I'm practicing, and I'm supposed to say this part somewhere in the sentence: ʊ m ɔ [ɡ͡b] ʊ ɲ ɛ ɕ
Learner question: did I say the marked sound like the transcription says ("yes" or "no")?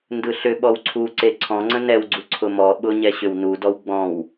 no